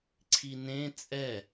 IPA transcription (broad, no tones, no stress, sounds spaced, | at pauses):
ǀʰ i n ẽ t͡sʼ ɛ